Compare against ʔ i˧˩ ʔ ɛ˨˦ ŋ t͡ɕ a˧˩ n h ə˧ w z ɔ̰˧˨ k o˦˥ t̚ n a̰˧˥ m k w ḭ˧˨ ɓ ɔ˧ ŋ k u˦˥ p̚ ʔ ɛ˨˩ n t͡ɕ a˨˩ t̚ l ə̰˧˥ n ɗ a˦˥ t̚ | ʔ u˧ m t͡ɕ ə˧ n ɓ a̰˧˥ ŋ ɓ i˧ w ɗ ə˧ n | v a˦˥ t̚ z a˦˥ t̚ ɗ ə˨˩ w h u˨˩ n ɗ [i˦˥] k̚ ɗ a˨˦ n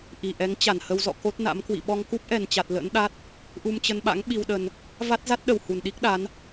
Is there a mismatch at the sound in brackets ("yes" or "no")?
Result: no